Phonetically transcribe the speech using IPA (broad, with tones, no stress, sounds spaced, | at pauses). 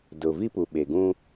d ʊ˨ v i˦ p u˨ ɓ e˨ ɡ ũ˦